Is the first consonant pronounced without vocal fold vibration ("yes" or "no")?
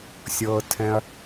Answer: yes